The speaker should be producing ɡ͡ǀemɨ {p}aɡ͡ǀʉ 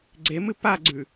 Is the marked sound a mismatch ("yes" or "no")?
no